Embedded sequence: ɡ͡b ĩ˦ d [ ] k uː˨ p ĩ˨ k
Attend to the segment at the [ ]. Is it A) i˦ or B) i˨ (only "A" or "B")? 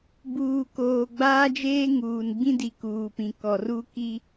B